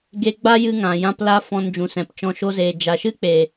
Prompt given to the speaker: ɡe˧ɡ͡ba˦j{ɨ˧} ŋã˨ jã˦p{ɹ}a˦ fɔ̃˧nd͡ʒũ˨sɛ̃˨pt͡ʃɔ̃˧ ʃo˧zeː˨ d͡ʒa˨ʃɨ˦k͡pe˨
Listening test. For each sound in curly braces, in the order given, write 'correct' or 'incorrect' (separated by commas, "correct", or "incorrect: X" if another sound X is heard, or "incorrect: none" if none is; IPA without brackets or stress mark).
correct, incorrect: l